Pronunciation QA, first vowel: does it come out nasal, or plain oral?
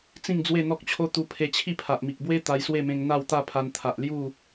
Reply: nasal